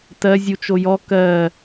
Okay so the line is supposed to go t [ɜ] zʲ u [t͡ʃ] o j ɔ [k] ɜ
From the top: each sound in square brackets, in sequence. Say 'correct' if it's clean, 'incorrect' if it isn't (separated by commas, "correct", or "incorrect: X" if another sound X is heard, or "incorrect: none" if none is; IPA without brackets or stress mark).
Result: correct, correct, correct